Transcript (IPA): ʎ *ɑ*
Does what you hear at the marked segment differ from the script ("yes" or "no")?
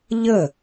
yes